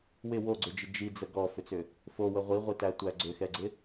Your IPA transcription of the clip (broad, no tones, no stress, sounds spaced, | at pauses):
w ɪ w o ɡ͡ǀ ʏ d͡ʒ ɪ d͡ʒ i d͡z ə ɡ ɔ f ʏ t͡s ʏ | f o w ə ʁʷ i ʁʷ i t æ tʷ æ ɡ͡ǀ ʏ x ɛ ɡ͡ǀ ɪ